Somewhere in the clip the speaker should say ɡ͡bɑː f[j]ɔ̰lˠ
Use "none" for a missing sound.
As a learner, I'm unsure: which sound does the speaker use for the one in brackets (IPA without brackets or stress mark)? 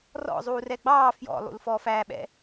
j